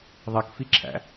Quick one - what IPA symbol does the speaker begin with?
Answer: ðˤ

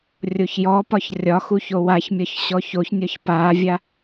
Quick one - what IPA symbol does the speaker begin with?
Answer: rʲ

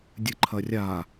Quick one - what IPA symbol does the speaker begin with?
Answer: dʲ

